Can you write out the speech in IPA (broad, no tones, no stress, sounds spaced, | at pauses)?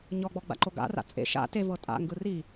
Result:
ɲ ɔ ɡ͡b ɔ ɡ͡b a̰ ǃ o ɡ a̰ r a̰ t͡sʼ ḛ ʃ a̰ t e v ɤ tʼ a̰ ŋ ɡ ɯ r i